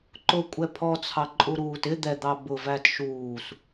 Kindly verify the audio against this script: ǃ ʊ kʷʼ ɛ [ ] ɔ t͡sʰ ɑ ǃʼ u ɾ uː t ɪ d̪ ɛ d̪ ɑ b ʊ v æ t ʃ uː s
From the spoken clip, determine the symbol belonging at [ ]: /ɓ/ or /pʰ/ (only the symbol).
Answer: pʰ